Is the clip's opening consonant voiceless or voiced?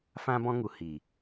voiceless